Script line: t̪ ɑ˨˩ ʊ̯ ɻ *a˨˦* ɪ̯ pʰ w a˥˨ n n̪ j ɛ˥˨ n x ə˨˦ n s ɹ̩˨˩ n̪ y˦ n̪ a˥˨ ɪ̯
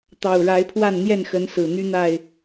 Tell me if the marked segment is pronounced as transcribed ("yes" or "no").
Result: yes